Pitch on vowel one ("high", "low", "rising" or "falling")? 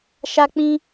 high